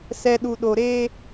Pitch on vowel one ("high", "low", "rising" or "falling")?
low